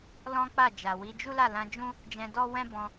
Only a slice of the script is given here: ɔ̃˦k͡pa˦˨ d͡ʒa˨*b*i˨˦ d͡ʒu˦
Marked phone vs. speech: incorrect: w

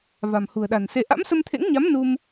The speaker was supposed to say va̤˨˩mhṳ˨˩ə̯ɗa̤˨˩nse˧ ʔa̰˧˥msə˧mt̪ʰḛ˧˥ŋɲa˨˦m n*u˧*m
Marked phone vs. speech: correct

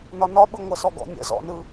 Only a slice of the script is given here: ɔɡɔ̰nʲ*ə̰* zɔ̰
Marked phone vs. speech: correct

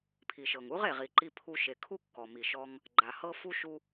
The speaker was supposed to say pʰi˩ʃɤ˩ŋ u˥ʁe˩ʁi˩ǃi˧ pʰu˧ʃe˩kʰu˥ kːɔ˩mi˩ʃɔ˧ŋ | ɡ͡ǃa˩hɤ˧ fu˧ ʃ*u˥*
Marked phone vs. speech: incorrect: u˧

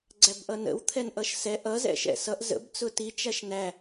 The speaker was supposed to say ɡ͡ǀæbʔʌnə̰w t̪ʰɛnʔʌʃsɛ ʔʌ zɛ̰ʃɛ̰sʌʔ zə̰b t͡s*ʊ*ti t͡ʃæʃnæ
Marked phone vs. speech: correct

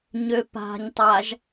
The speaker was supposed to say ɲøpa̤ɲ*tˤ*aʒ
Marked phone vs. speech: correct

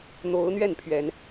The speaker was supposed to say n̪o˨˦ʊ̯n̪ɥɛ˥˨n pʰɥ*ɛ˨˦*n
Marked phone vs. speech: correct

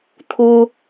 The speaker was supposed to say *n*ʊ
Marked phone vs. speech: incorrect: t̪ʰ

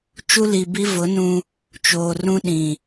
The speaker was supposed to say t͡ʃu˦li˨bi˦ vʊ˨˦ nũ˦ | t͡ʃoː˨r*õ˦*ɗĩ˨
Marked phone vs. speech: incorrect: ũ˦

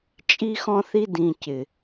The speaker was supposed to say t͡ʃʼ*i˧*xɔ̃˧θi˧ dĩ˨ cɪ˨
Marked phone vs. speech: correct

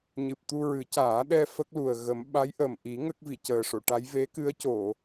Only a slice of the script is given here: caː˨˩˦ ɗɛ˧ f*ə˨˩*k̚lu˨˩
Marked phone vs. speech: incorrect: ə˦˥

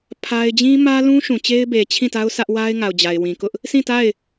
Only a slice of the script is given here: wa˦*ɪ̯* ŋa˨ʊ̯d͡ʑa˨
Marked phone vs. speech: correct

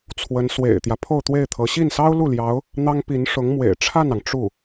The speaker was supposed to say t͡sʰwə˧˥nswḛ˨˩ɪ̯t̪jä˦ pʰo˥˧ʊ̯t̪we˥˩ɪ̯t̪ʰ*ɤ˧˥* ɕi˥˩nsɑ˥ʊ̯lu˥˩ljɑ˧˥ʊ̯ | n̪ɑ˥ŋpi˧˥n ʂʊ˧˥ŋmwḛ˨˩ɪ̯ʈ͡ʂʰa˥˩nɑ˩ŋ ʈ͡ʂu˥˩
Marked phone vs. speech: correct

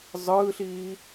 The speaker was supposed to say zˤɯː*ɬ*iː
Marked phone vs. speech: correct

